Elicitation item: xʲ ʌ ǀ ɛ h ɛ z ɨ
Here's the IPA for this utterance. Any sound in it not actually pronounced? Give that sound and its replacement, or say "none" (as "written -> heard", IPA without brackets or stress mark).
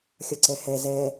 ɨ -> ɛ